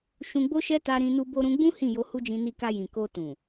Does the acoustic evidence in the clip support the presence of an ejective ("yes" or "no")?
no